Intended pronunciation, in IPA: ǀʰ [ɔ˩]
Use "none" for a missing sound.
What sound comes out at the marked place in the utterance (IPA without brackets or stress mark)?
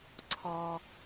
ɔ˩